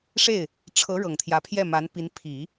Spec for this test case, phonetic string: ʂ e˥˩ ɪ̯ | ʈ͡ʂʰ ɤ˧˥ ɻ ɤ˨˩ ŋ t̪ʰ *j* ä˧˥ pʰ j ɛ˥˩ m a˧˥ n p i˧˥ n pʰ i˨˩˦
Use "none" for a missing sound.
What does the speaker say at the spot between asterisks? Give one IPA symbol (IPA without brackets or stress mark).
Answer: j